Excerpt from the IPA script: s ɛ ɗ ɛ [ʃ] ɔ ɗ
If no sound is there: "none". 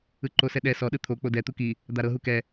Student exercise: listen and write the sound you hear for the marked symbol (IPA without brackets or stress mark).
s